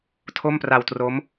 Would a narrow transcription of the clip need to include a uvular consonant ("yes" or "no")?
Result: no